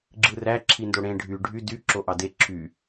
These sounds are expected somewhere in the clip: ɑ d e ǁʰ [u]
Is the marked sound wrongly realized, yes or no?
yes